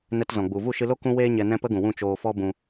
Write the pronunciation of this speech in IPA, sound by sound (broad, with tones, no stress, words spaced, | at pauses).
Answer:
nɛ˧tzɔ̃˨ɡ͡bu˨ vu˦˨ʃɨ˧lo˦ kũ˦weː˦ɲɛ˧ nɛ̃˦pə˦ɡũ˨wũ˦˨ t͡ʃoː˧fɔ˦bũ˧